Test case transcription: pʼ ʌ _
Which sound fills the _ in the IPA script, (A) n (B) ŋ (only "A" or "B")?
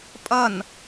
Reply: A